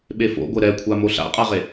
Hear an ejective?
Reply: yes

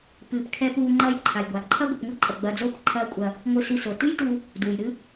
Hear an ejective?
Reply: yes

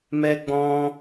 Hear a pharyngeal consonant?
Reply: no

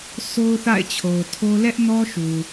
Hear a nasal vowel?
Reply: no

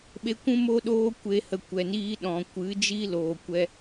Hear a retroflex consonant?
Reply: no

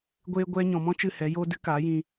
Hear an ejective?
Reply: no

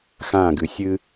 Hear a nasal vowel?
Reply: yes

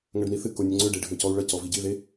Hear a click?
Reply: yes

